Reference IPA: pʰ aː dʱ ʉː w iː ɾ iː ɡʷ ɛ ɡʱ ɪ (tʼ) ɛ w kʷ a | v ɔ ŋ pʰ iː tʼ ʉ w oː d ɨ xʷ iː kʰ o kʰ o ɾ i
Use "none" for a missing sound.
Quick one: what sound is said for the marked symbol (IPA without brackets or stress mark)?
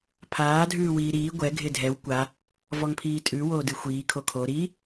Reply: dʱ